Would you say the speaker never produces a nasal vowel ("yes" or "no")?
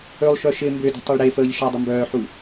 yes